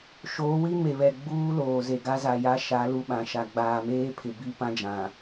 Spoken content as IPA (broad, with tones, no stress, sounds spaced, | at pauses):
ʃ oː˨˦ w i˦ m e˨ β ɛ˨ ɡ͡b uː˦ l oː˨ z e˨ ɡ a˦ z a˨ j a˦ ʃ a˨˦ l u˦˨ ɓ ã˨ ʃ a˨ ɡ͡b aː˨ m eː˦ pʰ ɪ˨ b i˦˨ p ã˦ d͡ʒ ã˨